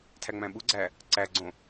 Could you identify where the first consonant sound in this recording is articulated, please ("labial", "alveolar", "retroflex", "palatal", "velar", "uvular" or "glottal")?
alveolar